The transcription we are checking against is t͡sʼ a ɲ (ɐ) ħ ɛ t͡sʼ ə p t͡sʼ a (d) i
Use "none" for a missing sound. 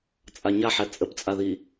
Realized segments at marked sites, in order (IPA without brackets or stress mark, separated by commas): a, ð